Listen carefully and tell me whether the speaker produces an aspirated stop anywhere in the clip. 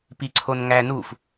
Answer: yes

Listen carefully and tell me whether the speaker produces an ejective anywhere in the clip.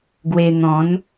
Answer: no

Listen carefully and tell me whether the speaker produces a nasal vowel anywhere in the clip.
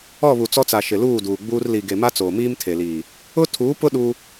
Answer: no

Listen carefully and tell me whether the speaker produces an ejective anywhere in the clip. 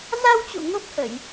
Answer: no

